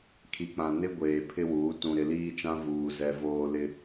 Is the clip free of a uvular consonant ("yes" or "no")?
yes